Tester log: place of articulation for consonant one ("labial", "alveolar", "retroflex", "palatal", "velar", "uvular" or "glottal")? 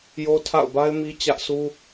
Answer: palatal